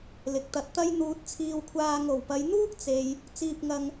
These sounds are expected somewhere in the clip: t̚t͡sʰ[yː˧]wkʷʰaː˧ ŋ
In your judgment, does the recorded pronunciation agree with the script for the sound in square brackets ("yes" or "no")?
no